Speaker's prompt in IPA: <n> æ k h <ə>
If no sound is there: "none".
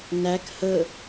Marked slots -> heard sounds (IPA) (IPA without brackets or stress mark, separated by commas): n, ə